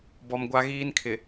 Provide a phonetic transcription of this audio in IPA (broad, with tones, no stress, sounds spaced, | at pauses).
b ɔ˨ m ɡʷ a˦ ɣ iː˦ n kʰ ɪ˨